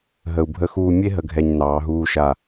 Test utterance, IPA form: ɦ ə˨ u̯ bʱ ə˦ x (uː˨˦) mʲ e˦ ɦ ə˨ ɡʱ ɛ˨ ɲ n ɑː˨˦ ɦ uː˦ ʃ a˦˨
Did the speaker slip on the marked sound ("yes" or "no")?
yes